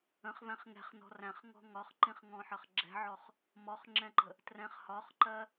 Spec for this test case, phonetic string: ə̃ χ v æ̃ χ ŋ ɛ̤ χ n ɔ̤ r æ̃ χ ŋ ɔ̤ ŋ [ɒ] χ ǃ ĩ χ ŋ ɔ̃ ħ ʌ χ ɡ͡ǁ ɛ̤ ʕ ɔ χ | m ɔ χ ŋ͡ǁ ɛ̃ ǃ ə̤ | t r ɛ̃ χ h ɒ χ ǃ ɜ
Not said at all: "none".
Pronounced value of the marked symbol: ɒ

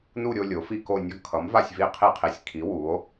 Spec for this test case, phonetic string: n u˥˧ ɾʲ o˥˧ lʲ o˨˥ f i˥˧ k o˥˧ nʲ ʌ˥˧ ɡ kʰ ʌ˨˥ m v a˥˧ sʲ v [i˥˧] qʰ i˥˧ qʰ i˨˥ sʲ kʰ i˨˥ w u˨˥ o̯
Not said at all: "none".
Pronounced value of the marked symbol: i˥˧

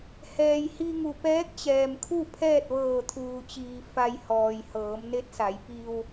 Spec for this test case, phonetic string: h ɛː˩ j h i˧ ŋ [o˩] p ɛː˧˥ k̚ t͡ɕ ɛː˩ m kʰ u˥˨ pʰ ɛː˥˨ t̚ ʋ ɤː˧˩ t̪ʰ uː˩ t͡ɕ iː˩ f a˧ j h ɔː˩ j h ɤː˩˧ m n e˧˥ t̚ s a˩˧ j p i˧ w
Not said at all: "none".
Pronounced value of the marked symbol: u˩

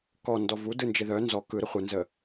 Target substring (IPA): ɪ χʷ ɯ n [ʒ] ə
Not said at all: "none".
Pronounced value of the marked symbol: z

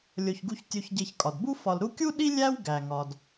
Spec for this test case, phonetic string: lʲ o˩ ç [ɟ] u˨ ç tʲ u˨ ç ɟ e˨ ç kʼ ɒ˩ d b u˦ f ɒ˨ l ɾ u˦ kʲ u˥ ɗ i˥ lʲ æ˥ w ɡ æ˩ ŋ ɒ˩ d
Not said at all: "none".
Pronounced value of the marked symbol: ɡ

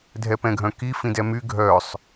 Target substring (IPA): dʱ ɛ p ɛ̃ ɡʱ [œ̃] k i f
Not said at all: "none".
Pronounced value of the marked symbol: œ̃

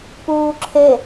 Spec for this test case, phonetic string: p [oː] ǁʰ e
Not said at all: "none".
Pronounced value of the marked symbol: uː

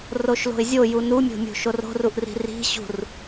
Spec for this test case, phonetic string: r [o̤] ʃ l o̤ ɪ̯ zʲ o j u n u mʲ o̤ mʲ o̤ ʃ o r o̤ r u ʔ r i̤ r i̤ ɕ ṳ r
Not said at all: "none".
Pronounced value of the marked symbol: o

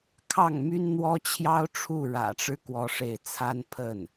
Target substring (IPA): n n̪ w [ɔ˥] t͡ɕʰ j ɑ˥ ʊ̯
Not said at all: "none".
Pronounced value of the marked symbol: ɔ˥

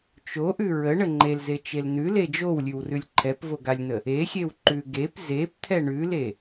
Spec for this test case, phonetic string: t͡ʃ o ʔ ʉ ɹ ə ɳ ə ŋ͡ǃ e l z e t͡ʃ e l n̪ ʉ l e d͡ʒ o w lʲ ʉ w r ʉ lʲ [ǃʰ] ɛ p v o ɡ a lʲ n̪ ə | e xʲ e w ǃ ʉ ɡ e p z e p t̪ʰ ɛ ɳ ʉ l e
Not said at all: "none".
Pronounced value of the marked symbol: ǃʰ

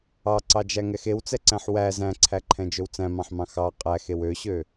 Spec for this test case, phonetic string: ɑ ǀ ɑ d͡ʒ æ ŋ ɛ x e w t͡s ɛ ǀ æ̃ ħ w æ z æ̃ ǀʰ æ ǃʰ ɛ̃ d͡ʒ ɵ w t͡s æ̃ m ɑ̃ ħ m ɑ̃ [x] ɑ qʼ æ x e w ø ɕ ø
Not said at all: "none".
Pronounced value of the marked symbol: x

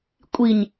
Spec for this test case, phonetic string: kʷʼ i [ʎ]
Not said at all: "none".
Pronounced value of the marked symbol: ɲ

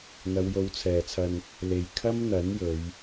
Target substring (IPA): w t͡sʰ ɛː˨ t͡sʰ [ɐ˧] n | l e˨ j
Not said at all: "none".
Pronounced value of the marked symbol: ɐ˧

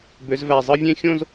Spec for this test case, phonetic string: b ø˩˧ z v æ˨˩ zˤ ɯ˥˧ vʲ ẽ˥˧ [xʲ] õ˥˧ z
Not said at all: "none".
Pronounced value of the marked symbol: xʲ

